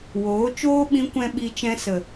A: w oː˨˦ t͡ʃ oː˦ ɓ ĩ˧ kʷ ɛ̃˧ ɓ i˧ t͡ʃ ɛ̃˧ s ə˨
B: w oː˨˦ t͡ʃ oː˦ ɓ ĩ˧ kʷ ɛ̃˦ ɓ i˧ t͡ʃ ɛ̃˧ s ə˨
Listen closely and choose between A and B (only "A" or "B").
B